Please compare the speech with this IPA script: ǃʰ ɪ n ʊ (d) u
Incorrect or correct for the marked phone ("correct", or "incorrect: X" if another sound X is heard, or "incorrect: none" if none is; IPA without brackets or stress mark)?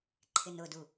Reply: correct